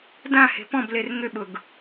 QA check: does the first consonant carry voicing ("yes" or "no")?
yes